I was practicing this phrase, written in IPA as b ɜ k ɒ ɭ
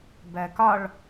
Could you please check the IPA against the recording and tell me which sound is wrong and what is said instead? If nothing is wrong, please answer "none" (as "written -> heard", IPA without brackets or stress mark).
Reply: none